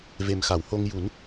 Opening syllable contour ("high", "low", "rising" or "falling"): low